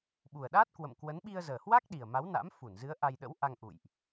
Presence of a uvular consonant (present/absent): absent